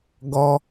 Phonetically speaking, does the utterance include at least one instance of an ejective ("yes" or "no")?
no